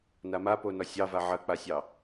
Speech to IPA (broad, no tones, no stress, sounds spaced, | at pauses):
n a m a p o n ɒ sʲ ɑ v a ʕ ɐ k͡p a sʲ ɑ